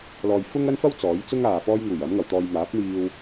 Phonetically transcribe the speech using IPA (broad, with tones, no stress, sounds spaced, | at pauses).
l ɔː˨ j f ʊ˥ ŋ ɐ˥ n f ɐ˥ w t͡s ɔː˨˥ j t͡s ʊ˥ ŋ aː˨ f ɔː˧ j ŋ uː˨˩ j ɐ˨˥ m ŋ ɐ˨˧ w t̪ ɔː˧ j m aː˨˥ p̚ n̪ iː˧ w